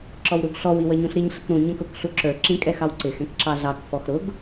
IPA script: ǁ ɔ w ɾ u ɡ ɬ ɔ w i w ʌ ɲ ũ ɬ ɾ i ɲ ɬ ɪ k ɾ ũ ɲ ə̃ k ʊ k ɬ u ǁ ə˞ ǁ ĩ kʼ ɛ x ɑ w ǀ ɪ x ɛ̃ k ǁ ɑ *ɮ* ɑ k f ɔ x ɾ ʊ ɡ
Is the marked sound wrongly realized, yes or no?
no